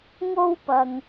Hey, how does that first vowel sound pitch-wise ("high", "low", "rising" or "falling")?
high